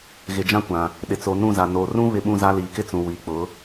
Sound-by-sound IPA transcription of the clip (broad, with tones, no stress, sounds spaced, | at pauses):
ɣ ɪ˨ d͡ʒ ã˦ kʷ ã˨ | ɗ ɪ˨ t͡s o˨ n ũ˦˨ z a˨ n o˨ r ũ˦ β ɪ˦ ɓ ũ˦ z a˦ l iː˨ k ɪ˦ t͡s ũ˨ w i˨ k͡p ʊ˨˦